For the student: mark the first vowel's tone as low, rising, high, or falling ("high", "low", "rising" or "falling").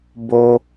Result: high